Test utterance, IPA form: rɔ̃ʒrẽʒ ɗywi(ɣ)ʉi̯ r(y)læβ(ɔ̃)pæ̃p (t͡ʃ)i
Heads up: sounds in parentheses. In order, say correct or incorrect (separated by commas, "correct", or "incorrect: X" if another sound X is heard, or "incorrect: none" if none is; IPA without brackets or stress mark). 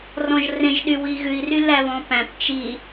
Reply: correct, correct, correct, correct